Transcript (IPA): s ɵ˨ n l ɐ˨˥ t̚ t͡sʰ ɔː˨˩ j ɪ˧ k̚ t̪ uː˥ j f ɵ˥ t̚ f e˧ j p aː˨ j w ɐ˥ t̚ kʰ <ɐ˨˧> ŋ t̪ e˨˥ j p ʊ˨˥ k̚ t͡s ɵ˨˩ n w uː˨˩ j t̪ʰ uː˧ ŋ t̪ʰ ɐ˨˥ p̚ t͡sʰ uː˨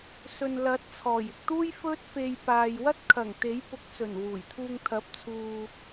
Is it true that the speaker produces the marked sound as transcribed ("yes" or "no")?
no